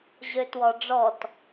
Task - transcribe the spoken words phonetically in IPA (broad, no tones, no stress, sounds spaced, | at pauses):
ʑ ø t w ɔ ɖ͡ʐ ɔ t